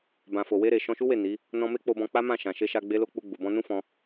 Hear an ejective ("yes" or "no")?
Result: no